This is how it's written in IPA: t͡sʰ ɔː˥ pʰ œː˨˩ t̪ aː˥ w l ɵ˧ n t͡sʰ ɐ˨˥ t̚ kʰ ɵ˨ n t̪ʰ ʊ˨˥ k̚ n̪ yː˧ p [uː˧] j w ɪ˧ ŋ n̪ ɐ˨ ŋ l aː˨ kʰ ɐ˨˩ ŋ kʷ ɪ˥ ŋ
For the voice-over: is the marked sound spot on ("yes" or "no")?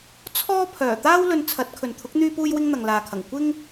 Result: yes